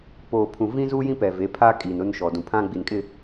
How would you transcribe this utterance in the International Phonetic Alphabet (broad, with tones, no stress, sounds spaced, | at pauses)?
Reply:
p oː˨ pʰ ũ˨ v ĩ˦ z uː˦ j ĩ˦ p ɛ˨ v e˨˦ pʰ a˦ kʼ iː˨ n ʊ˦ n ʃ ɔ˨ d ũ˨ pʰ ã˦ ɡ͡b i˨ n kʼ ɪ˦˨